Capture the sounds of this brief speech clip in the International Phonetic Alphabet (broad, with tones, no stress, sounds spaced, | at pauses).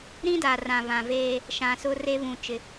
ɾ ĩ˦ d a˨ r ã˨ β ã˨ v eː˦ | ʃ ã˨ s ʊ˦ r e˦ β ũ˨ t͡ʃ ɪ˨